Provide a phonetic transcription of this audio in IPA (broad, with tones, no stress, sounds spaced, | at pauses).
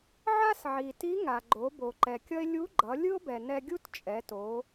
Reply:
ʕ a˥ s ʕ i˩ t i˧˥ ŋ a˩ ɡ͡ǃ o˩˧ b o˩ ǃ ɛ˩ kʲ ʌ˥ e̯ lʲ u˧˥ ɡ͡ǃ ʌ˩˧ lʲ ɯ˥ o̯ b ɛ˩ n ɛ˧ ɡʲ u˥ t t͡ʃʼ ɛ˩˧ t o˩˧